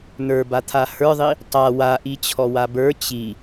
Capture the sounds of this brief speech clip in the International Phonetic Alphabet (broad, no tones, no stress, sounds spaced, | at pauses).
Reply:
n̪ ə˞ b a t̪ʰ a h ə˞ ðˤ i | tˤ a w a ʔ i t͡ɕʰ ɔ w a b ə˞ t͡ɕ i